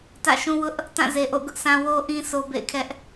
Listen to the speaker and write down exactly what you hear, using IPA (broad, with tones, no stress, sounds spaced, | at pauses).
t ä̰˦˨ ʃ ũ˦ w ʊ˦ ʔ | t ã˦˨ z e˨ ʔ o̰˦˨ ɡ ʊ˦ ʔ sʰ ã˦ w o˦ ʔ ĩ˦ sʰ o˦ b ḛ˦˨ ɪ̯ kʰ ɛ˦ ʔ